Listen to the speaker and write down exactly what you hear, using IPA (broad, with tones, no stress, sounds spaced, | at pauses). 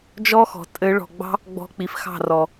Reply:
d͡ʒ ɔ˦ x ɔ̤˨ tʼ ɘ˨˦ ɭ ɔ̤˨ ɡ͡b ɑ̤˦ | ɡ͡b ɔ̤˧ k͡p i˨ f x ɑ̤˦˨ r ɔ˨